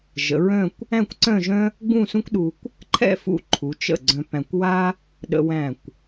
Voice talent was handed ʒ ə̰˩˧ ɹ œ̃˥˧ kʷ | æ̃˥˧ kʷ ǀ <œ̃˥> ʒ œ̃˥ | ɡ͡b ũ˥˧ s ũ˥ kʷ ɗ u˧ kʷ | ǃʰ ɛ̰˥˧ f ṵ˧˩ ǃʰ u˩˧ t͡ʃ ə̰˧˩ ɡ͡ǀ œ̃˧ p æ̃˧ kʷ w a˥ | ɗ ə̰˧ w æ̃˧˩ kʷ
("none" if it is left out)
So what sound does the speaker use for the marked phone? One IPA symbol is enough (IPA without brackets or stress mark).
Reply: œ̃˥˧